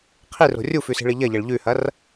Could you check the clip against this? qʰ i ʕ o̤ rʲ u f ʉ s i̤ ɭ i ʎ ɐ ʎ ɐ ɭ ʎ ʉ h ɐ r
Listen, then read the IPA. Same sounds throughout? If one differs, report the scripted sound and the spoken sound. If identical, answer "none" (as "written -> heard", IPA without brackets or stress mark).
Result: ʕ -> r